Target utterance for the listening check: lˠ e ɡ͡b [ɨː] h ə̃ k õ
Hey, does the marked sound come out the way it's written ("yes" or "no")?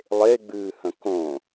yes